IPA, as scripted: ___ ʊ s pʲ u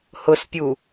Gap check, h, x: h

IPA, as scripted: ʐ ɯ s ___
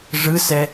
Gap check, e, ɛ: ɛ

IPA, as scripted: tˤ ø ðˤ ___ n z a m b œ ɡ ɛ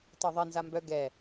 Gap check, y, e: e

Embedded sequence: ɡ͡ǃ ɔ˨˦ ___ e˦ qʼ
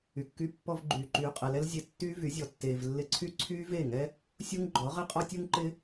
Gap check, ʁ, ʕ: ʁ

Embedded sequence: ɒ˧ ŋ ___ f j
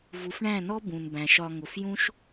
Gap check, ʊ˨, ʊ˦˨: ʊ˨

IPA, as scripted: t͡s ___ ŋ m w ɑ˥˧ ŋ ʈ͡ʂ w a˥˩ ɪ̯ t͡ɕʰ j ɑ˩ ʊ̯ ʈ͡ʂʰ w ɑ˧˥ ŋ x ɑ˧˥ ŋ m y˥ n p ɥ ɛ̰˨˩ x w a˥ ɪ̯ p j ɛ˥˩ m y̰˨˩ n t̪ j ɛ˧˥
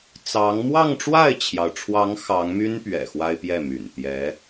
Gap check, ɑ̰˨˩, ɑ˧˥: ɑ˧˥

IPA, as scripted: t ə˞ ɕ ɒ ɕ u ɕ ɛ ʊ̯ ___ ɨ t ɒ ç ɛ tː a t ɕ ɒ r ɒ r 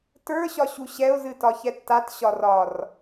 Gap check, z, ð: z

